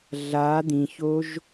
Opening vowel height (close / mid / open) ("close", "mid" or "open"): open